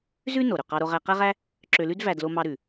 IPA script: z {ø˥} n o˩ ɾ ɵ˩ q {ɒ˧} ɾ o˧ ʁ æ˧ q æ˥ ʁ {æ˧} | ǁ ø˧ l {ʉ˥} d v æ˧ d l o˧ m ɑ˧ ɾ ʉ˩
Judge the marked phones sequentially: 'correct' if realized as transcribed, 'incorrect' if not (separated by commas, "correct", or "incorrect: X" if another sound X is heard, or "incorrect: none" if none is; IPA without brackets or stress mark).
incorrect: ʉ˥, incorrect: ɑ˧, incorrect: æ˥, correct